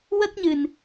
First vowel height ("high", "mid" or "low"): mid